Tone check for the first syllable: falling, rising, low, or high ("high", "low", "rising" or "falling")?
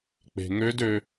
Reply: low